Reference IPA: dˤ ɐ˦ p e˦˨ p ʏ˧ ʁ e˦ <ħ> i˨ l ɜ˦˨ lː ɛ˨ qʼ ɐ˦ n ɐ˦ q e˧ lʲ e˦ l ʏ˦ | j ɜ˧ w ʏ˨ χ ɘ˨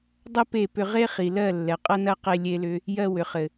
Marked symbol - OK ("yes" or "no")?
no